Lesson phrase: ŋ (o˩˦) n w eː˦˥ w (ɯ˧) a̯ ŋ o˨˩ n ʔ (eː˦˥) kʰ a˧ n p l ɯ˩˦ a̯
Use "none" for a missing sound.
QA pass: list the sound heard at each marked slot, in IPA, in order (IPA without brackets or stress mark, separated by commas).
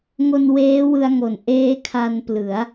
o˧, ɯ˧, eː˦˥